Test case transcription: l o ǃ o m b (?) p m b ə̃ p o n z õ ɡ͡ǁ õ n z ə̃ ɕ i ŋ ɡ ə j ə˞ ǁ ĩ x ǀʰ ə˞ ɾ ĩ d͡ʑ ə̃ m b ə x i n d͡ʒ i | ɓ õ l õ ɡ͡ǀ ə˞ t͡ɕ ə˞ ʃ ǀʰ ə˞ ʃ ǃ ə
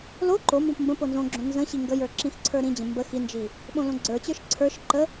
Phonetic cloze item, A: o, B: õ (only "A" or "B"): B